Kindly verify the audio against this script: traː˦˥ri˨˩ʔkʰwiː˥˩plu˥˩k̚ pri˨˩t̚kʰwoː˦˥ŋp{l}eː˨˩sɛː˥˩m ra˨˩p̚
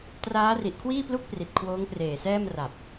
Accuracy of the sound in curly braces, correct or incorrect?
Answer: incorrect